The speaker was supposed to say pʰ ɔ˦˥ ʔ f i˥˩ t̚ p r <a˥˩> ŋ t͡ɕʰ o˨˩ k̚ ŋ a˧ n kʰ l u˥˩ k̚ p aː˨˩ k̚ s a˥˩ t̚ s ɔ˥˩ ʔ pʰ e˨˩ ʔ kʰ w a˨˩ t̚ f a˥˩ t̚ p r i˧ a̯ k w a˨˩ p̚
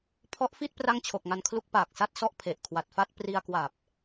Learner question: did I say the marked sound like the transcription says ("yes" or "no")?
yes